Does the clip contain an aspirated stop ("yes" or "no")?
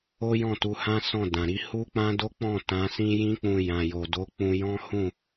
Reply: no